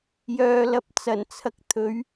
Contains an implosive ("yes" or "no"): no